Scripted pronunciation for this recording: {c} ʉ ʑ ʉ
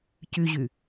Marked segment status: correct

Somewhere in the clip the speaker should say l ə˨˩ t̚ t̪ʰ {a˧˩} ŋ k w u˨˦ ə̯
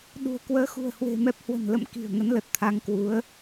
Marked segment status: incorrect: a˨˦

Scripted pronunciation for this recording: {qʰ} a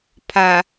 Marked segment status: incorrect: pʰ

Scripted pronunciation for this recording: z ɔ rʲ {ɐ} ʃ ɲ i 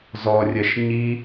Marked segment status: correct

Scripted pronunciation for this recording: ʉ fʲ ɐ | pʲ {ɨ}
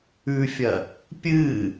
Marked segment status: correct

